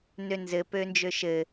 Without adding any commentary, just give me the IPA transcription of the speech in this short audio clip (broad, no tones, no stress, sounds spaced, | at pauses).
n ø n z ɘ p ø n d͡ʒ ø ʃ ɘ